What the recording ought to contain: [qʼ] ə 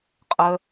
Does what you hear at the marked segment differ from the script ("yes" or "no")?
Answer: no